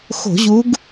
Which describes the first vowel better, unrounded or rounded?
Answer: rounded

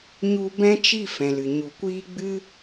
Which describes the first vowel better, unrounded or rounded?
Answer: rounded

